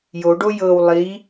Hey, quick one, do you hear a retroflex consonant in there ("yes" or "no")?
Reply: yes